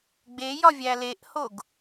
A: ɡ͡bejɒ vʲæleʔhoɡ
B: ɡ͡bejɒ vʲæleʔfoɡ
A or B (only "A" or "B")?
A